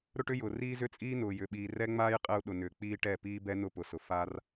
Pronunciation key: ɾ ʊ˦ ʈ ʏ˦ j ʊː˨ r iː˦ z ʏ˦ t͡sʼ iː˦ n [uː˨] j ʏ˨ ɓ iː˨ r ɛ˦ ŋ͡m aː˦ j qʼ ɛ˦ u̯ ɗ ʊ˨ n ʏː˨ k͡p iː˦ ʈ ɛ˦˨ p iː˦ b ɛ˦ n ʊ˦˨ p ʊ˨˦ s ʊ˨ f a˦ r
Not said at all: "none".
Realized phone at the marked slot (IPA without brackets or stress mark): ʊː˨